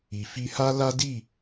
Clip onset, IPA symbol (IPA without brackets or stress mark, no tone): i